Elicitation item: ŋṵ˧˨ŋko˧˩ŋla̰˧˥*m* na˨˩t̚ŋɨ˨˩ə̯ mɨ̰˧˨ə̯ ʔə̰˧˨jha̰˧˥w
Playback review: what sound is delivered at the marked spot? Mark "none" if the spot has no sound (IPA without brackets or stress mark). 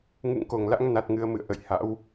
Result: ŋ